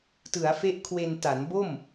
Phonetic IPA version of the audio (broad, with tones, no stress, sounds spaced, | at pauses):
t ɯ˩˦ a̯ f e˦˥ ʔ kʰ w e˧ n t a˩˦ n b o˥˩ m